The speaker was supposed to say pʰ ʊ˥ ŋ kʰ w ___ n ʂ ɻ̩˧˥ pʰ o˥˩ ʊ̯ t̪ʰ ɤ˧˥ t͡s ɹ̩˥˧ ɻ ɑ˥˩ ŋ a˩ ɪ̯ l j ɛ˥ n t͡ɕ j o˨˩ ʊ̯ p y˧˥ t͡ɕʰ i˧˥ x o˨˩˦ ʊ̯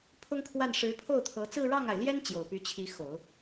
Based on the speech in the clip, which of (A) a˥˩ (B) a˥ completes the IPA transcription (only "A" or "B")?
A